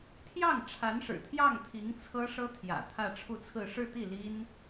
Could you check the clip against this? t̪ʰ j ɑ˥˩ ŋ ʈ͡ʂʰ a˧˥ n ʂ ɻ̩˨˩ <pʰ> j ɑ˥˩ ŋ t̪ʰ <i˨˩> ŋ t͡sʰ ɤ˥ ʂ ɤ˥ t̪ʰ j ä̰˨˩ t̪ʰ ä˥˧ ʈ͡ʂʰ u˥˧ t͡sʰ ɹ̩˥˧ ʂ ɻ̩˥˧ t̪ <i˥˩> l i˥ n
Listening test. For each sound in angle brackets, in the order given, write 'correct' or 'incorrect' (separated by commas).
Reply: incorrect, incorrect, correct